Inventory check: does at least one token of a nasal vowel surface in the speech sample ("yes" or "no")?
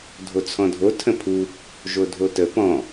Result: yes